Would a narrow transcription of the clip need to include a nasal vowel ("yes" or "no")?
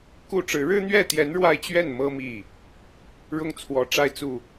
no